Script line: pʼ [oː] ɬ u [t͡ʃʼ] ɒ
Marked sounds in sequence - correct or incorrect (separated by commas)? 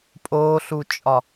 correct, correct